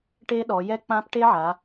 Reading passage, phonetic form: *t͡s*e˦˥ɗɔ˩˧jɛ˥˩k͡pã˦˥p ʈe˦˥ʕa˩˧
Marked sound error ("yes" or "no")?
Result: yes